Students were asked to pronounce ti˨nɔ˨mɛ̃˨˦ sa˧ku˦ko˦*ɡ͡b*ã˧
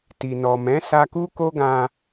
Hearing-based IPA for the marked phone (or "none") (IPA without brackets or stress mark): ɡ